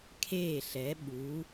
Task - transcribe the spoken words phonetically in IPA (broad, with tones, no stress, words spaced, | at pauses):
kʰeː˧˩ɬɛ˩˧ ɓu˩˧